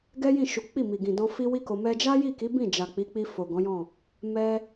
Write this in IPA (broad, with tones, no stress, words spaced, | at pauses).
ɡɛ˦jĩ˦˨ʃu˨˦k͡pi˦˨ mi˨ɡĩ˨dɔ̃˧ fi˦wi˦ko˧ mɛ˧d͡ʒa˦ji˦˨ki˨˦ bĩ˦˨d͡ʒa˨k͡pi˨˦k͡pi˧ fo˨ɡɔ̃˨˦jɔ̃˦˨ | mɛ˧